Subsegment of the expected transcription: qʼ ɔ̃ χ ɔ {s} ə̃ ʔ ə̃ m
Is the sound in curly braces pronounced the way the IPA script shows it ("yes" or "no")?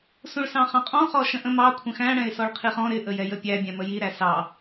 no